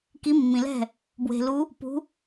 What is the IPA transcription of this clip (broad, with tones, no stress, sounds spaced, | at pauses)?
k i˨˦ mː ĩ˩ l ɛ̤˥˩ | b w e̤˩ l u˨˦ | p ṳ˨˦